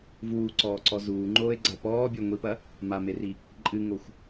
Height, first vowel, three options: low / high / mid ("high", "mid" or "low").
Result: high